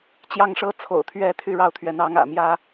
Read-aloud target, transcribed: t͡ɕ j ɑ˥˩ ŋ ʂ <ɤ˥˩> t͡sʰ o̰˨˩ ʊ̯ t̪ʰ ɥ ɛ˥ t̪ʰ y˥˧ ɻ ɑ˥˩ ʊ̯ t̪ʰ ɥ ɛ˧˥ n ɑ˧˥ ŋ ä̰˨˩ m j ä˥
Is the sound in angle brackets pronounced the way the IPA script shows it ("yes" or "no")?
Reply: no